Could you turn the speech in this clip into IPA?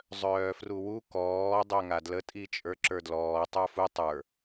zˤœːfruwu kɔː dˤœŋadlə tʼit͡ʃʼə˞ǁə˞dlɔː tˤə˞fu tˤə˞

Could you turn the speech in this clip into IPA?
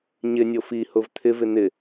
ɲɪnʲo fihʊv t̪ʰɪvɪ n̪ɪ

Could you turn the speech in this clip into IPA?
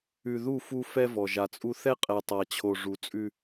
ʉ˨ðu˦˨ fu˦fɛ˦vɔ˨ ʒa˨t͡sʼu˦ θɛ˦qʼɛ˨tˤa˨t͡ɕʰo˨ ʐu˨t͡sʼʉ˦

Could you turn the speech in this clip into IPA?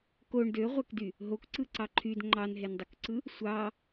koɳ døʁʷækdy | ɦokǀɯǀɑ ǃʰyd ŋ͡ǃɑnɦendˤokǀɯ | sʷɑ

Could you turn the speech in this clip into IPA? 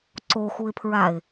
ǀoxuɪ̯pʰɹaɪ̯

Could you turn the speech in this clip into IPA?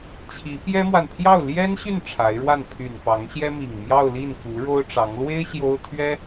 t͡ɕʰi˧˥pjɛ˥mwa˨n pʰjɑ˥˩ʊ̯ljɛ˥nɕy˥˩n ʈ͡ʂʰa˧˥ɪ̯ɻwa˥˩n pʰy˨˩n pɑ˧˥ŋɕjɛ˥ mi˨˩ŋmjɑ˥˧ʊ̯li˥˩nku˧˥ ɻo˥ʊ̯ʈ͡ʂɑ˧˥ŋ lwe˥ɪ̯ ɕjo˥ʊ̯t̪ʰɥɛ˥

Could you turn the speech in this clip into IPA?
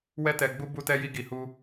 wɛ˧tɛ˨ɡ͡bu˧ bu˧tɛ˧ji˧ ɡi˨hu˧

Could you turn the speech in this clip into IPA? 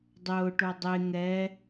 dˤʊːʈo dˤe ŋɛ

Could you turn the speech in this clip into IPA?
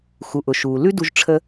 xu˩ʔʊ˩ ʃuː˩lʉ˥ du˧ʒ ʈ͡ʂʰə˧

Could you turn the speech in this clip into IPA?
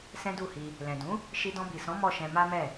sɛ̃˦du˦˨hi˧ | lɛ̃˨ dũ˨˦ | ʃi˧dɔ̃˧bi˨sɔ̃˨˦ mɔ˦˨ʃɛ̃˧ ma˦mɛ˦˨

